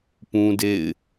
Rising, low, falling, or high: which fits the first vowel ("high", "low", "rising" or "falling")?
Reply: high